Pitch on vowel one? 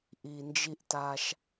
low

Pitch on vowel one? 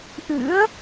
rising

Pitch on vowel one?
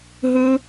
high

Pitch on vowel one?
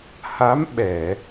rising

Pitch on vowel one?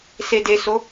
low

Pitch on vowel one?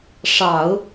low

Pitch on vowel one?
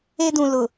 high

